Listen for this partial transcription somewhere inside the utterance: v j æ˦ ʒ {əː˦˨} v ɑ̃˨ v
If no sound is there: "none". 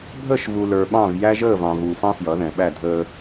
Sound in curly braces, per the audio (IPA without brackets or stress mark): əː˦˨